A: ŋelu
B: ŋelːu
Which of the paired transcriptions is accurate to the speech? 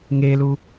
A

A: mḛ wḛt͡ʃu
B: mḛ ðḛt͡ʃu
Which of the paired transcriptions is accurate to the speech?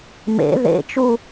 B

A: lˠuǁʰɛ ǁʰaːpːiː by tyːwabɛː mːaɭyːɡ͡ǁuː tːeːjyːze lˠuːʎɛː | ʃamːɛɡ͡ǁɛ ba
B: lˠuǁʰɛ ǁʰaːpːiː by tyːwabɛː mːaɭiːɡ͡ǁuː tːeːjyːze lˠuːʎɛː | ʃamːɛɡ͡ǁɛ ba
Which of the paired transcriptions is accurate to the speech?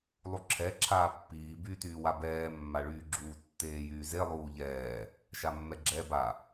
A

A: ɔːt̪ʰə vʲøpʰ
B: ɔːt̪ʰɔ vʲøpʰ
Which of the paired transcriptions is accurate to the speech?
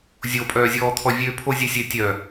B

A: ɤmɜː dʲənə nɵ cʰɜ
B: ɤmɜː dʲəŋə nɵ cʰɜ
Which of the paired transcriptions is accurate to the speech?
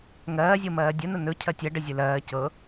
A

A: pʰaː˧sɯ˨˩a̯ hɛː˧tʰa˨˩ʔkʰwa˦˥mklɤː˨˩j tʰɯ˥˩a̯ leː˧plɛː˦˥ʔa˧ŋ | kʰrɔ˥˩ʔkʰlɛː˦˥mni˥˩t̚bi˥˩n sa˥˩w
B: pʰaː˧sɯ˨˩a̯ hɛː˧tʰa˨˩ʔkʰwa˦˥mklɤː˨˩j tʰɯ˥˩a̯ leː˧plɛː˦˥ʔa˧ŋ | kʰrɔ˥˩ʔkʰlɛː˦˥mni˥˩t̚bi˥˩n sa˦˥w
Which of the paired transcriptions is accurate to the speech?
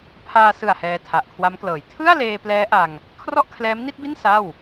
A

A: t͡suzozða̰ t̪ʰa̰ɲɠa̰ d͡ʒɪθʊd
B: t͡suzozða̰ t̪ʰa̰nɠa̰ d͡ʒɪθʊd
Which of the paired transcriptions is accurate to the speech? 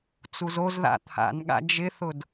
B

